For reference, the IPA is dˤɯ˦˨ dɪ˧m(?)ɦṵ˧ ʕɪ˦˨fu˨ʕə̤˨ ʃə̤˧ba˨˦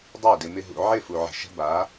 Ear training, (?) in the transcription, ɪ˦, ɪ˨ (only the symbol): ɪ˦